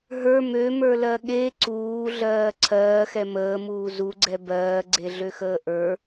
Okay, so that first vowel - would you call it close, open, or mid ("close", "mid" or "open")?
mid